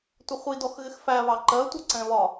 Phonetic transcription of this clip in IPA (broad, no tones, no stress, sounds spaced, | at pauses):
tʷ ɪ χʷ i d ɔ x ɣ ɪ x f æ β ɑ ǃ ɜ tʷ ʌ ǀ ɛ̃ β ɒ